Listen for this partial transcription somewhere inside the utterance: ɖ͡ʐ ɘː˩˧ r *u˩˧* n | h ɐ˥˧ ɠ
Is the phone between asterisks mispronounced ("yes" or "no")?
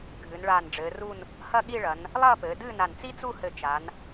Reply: yes